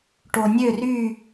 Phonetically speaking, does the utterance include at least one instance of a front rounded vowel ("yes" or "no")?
yes